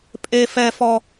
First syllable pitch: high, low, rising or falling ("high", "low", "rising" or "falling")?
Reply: high